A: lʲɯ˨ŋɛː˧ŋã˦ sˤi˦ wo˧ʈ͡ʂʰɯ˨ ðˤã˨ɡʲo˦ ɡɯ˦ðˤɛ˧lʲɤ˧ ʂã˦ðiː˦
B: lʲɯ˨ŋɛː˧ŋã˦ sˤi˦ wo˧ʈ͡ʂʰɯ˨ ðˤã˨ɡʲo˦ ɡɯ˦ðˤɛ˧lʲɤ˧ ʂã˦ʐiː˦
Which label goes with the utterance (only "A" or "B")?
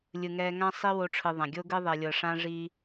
B